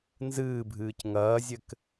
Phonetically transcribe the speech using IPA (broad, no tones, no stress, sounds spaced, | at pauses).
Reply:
n z ɨː bʱ ɨː c ŋ ɐː zʲ ɘ k